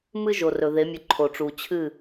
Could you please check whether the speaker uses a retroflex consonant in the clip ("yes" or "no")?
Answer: yes